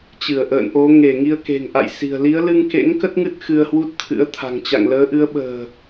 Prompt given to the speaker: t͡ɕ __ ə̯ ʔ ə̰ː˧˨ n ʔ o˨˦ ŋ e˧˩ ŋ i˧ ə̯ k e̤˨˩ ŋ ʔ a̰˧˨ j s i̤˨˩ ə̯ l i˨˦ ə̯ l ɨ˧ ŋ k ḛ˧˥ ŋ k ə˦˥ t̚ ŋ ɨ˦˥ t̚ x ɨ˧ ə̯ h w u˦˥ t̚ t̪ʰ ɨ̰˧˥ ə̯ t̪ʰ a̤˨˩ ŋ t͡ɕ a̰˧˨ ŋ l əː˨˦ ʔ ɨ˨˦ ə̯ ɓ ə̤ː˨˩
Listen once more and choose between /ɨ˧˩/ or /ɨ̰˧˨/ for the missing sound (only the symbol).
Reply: ɨ˧˩